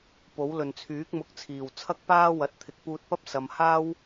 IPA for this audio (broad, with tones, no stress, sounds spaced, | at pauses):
p o˨˥ w l ɵ˨ n t͡sʰ yː˨˥ k̚ m ʊ˨˥ k̚ t͡sʰ iː˨˩ w t͡sʰ ɐ˥ k̚ p aː˥ w ɐ˨˥ t̚ t̪ʰ ɪ˨˥ k̚ p uː˧ t̚ p ɐ˥ p̚ s ɐ˨˧ m h aː˥ w